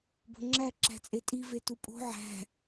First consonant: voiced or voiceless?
voiced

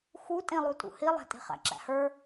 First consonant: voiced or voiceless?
voiceless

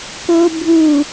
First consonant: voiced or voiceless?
voiceless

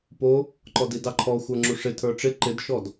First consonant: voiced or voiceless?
voiceless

